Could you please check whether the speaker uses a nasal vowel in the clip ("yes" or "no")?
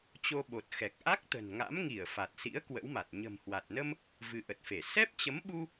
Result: no